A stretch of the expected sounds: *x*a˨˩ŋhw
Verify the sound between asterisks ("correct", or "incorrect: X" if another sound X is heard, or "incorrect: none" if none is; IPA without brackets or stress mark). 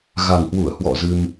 incorrect: ɣ